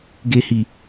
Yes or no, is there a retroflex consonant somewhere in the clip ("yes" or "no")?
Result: no